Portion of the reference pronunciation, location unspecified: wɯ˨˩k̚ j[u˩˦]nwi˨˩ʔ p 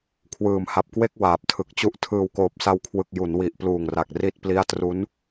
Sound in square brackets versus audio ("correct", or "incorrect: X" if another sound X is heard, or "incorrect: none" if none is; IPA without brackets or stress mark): correct